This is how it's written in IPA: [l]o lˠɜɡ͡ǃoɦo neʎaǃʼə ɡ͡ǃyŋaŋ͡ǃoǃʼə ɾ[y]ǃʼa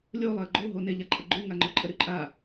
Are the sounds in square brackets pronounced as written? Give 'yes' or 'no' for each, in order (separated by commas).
no, yes